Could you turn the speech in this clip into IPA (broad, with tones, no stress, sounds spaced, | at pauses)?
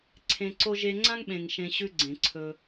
ǀʰ ẽ˧ ǀ o˦ ʒ e˧ ŋ͡ǀ ã˦ ŋ ɓ ẽ˨ ŋ ʃ ẽ˧ ɕ ʉ˦ ɡ͡ǀ ẽ˨ ǀʰ ɵ˧